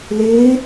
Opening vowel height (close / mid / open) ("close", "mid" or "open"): close